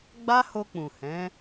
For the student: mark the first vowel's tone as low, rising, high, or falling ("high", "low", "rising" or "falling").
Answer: high